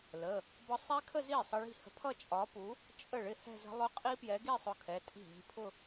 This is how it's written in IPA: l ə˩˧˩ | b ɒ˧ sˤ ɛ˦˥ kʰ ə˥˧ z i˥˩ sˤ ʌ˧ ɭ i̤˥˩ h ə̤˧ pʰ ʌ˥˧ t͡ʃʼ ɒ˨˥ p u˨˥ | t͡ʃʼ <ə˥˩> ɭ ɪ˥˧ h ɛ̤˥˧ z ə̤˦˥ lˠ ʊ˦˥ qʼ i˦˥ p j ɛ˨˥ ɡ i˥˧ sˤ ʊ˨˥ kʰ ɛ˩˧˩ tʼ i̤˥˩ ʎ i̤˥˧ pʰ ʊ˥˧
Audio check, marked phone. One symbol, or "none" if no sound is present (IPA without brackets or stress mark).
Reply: ə˥˩